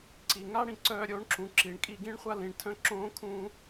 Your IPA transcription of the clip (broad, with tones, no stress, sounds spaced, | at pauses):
ǀ i˨ ŋ a˦ ɽ ĩ˨ ǀ œː˧ ɾʲ o˨˦ ɳ ǁ ũ˨ ǁ i˨ ɳ kʼ i˧ ɡ ĩ˦ ɳ χʷ a˦ l ĩ˨ ɳ tʰ œ̃˦ ǁ õː˦ kʰ ũː˦